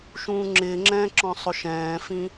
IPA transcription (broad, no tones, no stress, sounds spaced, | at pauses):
ʃ ũː ŋ͡ǁ ɪː ŋ͡ǁ ɛ̃ː ǁ ɔ̃ sˤ ʊ ʃ ɛ̃ː f ĩ